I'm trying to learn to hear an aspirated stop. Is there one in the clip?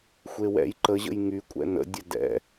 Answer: no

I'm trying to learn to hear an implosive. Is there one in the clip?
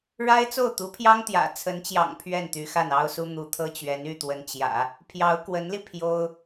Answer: no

